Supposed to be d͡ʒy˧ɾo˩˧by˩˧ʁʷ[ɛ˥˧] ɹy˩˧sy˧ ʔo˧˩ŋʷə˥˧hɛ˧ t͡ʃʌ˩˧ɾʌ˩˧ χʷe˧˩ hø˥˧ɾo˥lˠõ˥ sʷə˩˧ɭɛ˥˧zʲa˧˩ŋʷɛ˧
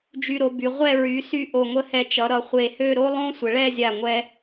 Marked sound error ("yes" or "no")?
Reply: no